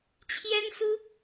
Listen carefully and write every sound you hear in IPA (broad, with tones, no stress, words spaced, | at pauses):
t͡ɕʰjɛ˥nsu˥